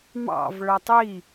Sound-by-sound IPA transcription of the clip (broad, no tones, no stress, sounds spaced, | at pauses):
m ɑ̰ v ɭ œ tˤ i